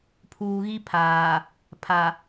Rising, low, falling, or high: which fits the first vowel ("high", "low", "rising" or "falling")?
low